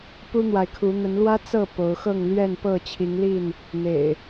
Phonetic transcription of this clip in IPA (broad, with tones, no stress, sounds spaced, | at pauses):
p u˦ n̪ w a˨ ɪ̯ kʰ u˨˦ n̪ ə˨˦ n l w ä˦ t͡s ɤ˥˨ p o˨˦ ʊ̯ x ɤ˥˨ ŋ l ɥ ɛ˥˨ n p ɤ˥˨ t͡ɕʰ i˨˦ ŋ l i˥˨ n | n̪ ḛ˨˩ ɪ̯